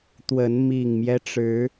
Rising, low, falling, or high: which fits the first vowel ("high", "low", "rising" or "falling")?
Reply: rising